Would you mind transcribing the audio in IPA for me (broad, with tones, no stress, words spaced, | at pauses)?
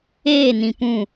eː˦˨nĩ˨pũ˦˨